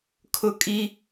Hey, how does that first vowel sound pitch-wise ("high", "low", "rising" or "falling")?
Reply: high